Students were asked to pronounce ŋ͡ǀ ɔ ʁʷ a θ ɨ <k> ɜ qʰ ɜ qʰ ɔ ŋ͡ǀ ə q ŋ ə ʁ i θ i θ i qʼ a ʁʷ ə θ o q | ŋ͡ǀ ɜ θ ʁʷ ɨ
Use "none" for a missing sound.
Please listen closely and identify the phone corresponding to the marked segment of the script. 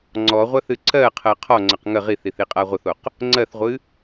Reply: ǀ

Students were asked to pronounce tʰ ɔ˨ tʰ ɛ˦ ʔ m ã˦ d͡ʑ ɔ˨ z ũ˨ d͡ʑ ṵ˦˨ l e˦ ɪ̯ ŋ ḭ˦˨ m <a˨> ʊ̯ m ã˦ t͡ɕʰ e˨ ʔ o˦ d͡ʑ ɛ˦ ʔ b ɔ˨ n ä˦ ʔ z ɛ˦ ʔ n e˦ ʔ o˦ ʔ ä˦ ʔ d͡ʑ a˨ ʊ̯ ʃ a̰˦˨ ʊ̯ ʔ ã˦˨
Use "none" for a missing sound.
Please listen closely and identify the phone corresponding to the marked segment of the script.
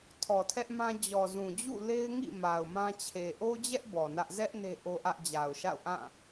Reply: a˨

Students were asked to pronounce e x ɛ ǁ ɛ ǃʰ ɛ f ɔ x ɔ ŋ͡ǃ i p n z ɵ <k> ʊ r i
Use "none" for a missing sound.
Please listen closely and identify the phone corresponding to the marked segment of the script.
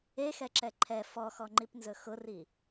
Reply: x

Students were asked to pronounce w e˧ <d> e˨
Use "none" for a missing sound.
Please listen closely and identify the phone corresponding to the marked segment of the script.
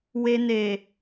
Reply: n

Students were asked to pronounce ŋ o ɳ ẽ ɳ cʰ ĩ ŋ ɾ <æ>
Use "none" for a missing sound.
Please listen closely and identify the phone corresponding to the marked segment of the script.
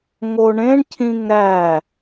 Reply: æ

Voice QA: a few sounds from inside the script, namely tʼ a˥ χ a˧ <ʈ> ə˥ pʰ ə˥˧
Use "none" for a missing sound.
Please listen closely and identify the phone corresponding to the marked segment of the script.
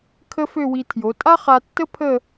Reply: tː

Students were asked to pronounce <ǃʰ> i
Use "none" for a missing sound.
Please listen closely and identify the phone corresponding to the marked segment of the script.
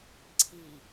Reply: ǀʰ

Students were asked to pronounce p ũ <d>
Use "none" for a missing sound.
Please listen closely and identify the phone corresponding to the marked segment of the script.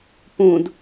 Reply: d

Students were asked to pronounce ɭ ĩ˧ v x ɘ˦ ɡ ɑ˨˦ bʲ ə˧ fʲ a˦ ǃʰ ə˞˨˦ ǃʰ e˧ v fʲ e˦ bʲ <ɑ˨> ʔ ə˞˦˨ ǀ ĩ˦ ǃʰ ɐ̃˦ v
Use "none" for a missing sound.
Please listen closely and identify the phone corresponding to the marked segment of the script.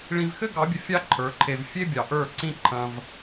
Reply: ɑ˨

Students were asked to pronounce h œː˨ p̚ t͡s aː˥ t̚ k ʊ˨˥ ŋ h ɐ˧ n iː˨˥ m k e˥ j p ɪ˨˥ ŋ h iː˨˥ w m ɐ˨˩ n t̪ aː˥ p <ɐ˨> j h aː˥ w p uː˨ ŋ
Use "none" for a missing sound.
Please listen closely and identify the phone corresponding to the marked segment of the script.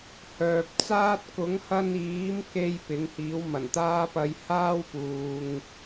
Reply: ɐ˧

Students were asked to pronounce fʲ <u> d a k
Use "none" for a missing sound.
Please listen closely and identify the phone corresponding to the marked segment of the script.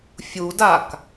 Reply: u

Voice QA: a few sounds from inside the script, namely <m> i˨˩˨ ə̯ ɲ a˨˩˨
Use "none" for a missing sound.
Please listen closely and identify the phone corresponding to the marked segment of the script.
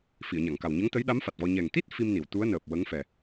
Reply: f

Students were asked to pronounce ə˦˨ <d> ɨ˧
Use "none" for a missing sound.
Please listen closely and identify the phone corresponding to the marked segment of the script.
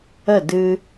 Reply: d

